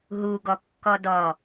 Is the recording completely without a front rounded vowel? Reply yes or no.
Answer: yes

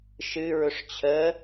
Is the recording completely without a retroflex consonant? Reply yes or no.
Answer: no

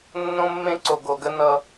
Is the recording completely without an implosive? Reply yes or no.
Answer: yes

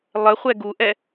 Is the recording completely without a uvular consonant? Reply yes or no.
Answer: no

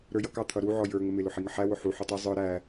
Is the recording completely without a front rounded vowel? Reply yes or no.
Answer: yes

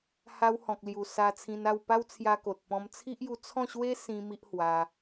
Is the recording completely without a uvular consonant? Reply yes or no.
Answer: yes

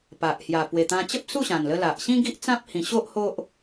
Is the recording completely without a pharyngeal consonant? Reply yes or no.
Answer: yes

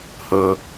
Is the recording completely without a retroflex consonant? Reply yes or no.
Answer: yes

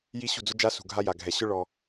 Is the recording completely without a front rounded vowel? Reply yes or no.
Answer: yes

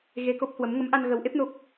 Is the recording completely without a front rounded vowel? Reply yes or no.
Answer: yes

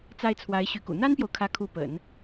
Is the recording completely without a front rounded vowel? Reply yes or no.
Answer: no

